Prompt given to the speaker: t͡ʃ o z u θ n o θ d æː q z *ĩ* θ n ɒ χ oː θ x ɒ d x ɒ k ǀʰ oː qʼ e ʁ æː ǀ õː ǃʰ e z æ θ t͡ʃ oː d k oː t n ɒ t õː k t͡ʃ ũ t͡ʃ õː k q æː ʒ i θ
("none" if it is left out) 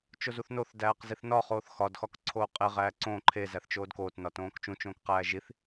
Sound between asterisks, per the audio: i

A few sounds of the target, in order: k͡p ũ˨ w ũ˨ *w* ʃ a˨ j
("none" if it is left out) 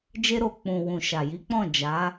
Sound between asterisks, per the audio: none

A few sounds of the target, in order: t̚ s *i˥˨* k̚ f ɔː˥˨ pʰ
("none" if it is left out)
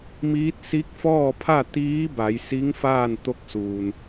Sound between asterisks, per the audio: i˧˥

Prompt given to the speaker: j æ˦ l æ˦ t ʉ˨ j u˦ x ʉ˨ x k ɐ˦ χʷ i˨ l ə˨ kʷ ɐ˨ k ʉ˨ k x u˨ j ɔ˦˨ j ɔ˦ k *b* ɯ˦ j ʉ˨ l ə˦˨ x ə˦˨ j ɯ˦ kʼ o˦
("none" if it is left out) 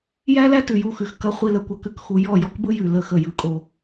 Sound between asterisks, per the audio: b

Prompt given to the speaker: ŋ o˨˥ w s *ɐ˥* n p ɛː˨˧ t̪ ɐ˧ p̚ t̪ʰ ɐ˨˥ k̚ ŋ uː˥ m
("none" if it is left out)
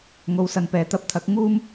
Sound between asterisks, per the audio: ɐ˨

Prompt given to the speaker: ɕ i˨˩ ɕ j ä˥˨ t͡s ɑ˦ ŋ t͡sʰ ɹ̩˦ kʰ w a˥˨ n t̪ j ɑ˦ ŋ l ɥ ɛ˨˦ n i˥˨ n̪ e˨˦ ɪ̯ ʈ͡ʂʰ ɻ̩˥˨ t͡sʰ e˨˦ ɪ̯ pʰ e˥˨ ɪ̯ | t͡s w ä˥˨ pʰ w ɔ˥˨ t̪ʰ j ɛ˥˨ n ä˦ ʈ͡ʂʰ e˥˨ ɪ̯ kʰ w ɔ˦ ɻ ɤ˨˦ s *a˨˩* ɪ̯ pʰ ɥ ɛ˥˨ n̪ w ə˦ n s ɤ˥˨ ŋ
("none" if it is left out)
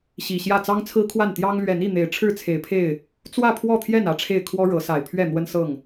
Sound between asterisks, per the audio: a˨˩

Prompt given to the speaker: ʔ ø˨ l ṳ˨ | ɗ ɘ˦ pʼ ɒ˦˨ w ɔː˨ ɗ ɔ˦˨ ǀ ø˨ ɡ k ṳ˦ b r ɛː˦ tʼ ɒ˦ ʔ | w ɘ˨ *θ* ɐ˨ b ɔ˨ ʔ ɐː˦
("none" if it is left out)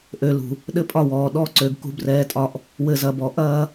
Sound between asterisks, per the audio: z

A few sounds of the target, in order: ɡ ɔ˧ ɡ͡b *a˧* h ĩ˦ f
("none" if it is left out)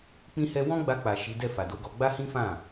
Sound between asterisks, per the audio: a˦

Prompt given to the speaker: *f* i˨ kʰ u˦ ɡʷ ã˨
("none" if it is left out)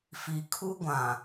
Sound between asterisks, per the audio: f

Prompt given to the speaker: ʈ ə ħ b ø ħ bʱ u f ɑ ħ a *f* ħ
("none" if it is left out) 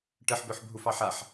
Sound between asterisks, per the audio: none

